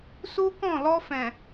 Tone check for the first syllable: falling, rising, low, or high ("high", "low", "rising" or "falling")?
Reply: high